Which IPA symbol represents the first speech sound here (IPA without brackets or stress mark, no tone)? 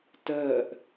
t